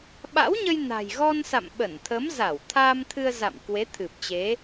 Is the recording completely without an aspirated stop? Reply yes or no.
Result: no